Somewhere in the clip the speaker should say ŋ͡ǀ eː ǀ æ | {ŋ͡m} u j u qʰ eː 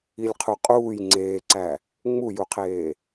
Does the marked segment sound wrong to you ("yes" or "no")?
no